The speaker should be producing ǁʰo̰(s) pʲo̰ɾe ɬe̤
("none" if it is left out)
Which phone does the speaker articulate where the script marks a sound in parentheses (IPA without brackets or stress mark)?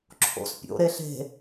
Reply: s